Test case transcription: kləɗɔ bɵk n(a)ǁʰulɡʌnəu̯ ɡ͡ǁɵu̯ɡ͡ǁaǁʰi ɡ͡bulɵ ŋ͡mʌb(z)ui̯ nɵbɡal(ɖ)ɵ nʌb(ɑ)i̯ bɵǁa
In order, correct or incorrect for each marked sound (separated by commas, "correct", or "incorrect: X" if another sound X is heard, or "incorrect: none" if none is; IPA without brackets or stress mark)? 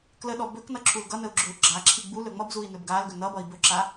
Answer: incorrect: ʌ, correct, incorrect: ɡ, incorrect: ʌ